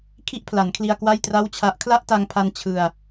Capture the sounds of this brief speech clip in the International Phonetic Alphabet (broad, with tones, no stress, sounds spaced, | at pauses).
kʰ i˥˩ ʔ pʰ l a˩˦ n kʰ l i˧ a̯ k w a˥˩ j t r a˥˩ w t͡ɕʰ a˦˥ ʔ kʰ l a˥˩ ʔ t a˧ ŋ pʰ a˧ n t͡ɕʰ ɯ˧ a̯